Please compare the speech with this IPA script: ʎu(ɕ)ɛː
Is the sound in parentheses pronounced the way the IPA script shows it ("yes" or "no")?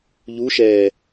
no